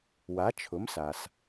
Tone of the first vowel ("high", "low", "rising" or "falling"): rising